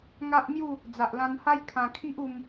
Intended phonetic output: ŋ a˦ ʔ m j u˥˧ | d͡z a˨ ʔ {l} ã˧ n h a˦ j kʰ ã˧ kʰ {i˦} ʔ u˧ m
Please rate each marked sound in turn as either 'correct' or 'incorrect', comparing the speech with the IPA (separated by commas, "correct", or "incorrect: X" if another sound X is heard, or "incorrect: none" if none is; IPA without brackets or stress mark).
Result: correct, correct